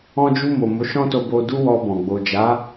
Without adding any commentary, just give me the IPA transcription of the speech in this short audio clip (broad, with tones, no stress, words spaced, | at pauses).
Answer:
ɔ̃˧d͡ʒu˧ mo˨ mo˨˦ʃɔ̃˦to˧bo˧ du˦wɔ˧bɔ̃˨ ɡ͡bo˨d͡ʒa˨˦